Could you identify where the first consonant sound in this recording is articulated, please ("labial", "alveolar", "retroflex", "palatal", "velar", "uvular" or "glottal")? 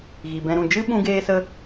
velar